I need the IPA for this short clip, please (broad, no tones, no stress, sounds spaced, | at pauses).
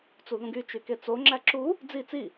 t͡s u ð ũ ɡ y t͡ʃ y k e t͡s o ŋ͡ǁ æ ǁ u | d͡z i t͡s i